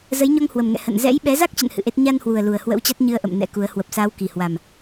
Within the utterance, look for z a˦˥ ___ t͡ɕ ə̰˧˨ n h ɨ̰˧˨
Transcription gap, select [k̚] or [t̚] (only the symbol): k̚